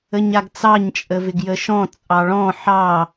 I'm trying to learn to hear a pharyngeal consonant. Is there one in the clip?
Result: yes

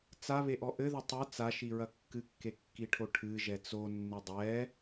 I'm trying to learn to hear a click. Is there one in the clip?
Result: no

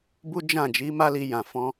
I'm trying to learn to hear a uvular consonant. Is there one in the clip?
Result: no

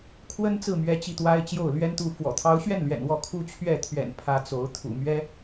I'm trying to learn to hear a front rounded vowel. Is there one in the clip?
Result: no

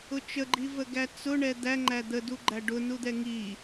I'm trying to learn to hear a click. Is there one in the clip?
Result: yes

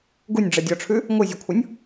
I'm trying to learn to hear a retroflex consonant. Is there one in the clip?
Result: yes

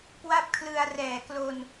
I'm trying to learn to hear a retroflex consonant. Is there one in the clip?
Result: no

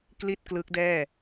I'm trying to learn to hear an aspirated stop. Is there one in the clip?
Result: no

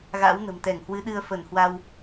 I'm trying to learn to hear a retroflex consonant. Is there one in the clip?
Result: no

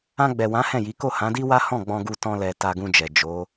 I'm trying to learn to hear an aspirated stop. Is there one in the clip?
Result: no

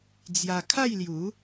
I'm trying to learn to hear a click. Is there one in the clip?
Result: no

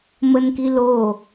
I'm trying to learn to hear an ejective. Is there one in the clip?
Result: no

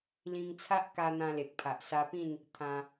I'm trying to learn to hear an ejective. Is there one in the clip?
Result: no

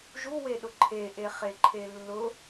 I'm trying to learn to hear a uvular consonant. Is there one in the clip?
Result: yes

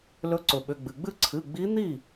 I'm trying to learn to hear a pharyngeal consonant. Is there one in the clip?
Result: no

